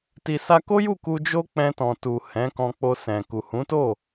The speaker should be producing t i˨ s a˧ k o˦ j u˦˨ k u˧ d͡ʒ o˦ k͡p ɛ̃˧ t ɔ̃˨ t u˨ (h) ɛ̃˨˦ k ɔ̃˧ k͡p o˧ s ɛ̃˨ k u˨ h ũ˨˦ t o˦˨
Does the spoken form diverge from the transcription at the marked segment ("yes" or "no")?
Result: no